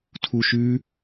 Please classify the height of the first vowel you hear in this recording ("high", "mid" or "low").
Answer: high